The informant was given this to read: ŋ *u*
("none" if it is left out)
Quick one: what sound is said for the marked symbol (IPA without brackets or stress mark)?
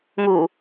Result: u